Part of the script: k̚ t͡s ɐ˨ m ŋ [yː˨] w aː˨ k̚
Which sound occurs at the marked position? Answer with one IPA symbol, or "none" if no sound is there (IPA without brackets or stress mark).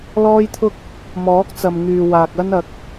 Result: yː˨